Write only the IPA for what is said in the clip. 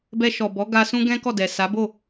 b ɛ˧ ʃ ɔ˨ b ɔ˨˦ ɡ a˦ s ũ˦ ɡ ɛ̃˦ k ɔ˦˨ d ɛ˨ s a˨˦ b o˦˨

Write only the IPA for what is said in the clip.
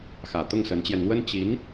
x ä˨˩ t̪ ʊ˥˩ ŋ s ə˧˥ n t͡ɕ j ɛ˧ n n̪ w ə˥ n t͡ɕ i˧˥ n

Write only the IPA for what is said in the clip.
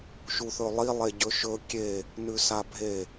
ʃ u θ ɵ lˠ i lˠ e ɟ ɵ ʃ ɵ kʲ e | n ʉ s a bʱ e

